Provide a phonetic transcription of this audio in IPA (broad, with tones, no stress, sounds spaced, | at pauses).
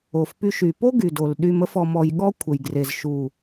o˨ f p y˦ ʃ y˨ p o˦ ɡ y˨ d o˨ l ɗ y˨ m ə˦ f ɔ˨ m ɔ˨ j ɠ ɔ˦ kʷʰ ə˨ j ɡ r e˨ z ʃ u˨